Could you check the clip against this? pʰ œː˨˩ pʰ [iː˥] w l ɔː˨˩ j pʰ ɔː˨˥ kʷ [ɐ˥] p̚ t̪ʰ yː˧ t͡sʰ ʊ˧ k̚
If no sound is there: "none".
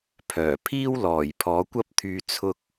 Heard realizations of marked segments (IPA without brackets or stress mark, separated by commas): iː˥, ɐ˥